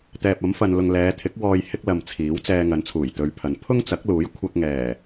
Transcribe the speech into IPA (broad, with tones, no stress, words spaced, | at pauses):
t̪ɛː˨p̚ɐ˨˥mfɐ˨nlʊ˨ŋ lɛː˨˧t̪ʰɪ˨˥k̚wɔː˧j hɪ˥k̚lɐ˧mt͡sʰiː˨˥wt͡sɛː˧ ŋɐ˨˥nt͡sʰuː˨˩jt̪ɵ˨˧ɥpʰɐ˨n pʰʊ˥ŋt͡sɐ˨˥k̚luː˨˥j kʷʰɐ˧k̚ŋɛː˨˩